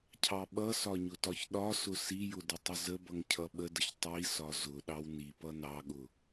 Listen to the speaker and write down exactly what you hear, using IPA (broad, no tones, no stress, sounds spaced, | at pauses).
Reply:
cʰ ɑ ɓ ʌ s ɒ ɲ ʊ t ɒ ç ɗ ɒ s ʊ s i j ʊ d ə tˤ ə z ə b ʌ ŋ cʰ ʌ ɓ ə d ə ç tˤ i s ɒ z ʊ ɗ ɑ w n i p ʌ n ɑ ɠ ʊ